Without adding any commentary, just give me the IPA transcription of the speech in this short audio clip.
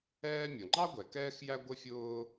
ɛː˥ mʲ ʌ˩ ŋ͡ǃ ɑ˥ ɡʷ ɛ˩ k ɛː˥ x j æ˥ ɡʷ ə˥ fʲ ʊː˥

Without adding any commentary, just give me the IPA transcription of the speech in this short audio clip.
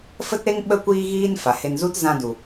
f ə˦ t ɾ e˦ ŋ ɓ ə˦ kʷ iː˦ ɣ iː˦ n f a˨ h e˧ n z u˦ t z ã˧ d u˨

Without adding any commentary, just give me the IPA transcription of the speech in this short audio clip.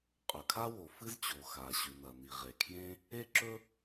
qʼ ɵ˩ kʰ a˥ w o˩ f ɨ˥ z t͡ɕ o˩ x a˩ ɕ ʉ˩ n ɐ˩ n i˩ ʁ e˩ kʰ j ẽ˥ | e˥ ǁ ɵ˥

